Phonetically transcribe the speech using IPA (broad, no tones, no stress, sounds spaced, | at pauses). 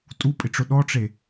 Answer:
tʼ u pʼ ɪ ʈ͡ʂ ʊ ɗ ɔ ʈ͡ʂ e